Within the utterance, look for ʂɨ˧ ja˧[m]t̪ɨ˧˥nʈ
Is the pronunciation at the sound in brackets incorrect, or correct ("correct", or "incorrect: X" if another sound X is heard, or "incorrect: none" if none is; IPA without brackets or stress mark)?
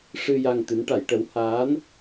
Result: incorrect: ŋ